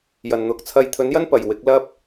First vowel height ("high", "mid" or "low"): low